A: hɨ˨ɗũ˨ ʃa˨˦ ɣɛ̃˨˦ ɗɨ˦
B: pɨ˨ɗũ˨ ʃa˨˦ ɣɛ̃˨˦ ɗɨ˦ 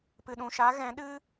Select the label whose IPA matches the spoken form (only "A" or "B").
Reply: B